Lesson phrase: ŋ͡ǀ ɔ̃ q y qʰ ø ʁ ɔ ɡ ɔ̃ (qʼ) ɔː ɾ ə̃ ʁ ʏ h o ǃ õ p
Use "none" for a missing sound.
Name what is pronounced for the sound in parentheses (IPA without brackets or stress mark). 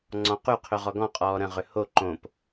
qʼ